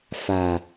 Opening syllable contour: low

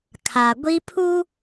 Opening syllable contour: low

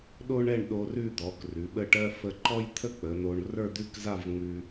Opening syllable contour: high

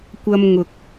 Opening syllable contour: high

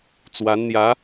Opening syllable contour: rising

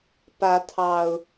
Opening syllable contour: rising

